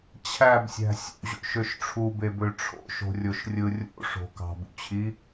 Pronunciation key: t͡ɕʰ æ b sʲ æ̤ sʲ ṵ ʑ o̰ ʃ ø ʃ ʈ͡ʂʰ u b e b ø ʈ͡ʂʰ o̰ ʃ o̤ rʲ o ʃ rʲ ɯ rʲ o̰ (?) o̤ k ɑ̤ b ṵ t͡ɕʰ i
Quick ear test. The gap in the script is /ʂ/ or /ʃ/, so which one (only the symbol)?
ʂ